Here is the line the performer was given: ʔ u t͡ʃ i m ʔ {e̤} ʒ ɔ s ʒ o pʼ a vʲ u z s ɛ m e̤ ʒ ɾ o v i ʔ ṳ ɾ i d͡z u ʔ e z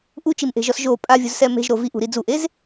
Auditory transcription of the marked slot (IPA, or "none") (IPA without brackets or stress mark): e̤